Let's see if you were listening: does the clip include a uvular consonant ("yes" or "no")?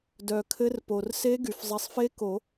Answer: no